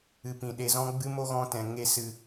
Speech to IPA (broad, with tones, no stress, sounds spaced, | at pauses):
ɨ˨ p ĩ˨ ɗ e˨ z ɔ̃˧ ɡ͡b ɨ˧ m o˦ ɣ ɔ̃˧ t ɛ̃˨ ŋ e˧ s ɨ˨